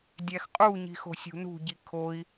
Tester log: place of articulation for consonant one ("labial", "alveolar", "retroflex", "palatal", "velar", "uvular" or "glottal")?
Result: alveolar